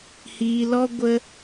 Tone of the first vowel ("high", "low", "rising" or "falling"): low